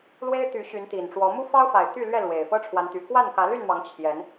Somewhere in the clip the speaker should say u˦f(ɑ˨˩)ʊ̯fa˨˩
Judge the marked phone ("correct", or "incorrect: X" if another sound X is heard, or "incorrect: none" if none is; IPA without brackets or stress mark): incorrect: ɑ˦